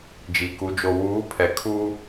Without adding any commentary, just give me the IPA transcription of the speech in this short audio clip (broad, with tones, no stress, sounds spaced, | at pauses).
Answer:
d͡ʒ i˨ k u˨˦ d͡ʒ o˨ w uː˨˦ pʰ ɛ˨ kʰ uː˦